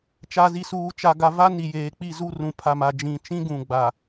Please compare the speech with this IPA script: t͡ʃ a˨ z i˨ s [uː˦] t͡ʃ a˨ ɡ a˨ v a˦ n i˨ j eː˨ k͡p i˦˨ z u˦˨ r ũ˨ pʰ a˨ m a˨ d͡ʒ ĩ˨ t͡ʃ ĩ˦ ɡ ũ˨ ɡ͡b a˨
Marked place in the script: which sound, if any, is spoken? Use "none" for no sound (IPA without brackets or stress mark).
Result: uː˨